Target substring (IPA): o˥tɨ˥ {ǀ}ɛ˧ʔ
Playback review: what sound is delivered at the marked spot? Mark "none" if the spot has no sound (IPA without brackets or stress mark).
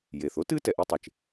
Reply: t